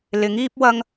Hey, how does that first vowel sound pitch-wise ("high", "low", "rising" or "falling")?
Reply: rising